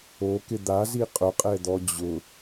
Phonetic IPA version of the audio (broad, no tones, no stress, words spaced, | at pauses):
okɪ d̪azi qʼʊqʼɛd̪ɔ d͡ʑʊ